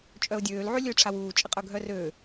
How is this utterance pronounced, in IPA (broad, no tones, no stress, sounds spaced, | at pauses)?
t͡ʃʼ œ ʊ̯ dʲ øː l ʕ y lʲ ø ʈ͡ʂʰ a w uː t͡ʃʼ ə qʼ œ ɡʱ œ r øː